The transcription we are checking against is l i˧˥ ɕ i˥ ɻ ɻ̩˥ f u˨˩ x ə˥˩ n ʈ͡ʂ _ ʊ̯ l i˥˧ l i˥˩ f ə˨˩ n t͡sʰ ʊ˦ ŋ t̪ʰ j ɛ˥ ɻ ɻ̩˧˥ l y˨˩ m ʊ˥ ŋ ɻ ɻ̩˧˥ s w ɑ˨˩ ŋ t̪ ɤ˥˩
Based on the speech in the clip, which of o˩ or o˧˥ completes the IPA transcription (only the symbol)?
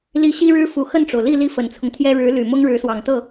o˩